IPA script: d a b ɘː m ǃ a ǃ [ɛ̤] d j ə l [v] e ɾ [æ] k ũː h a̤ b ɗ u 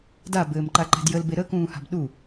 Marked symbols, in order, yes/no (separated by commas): yes, no, no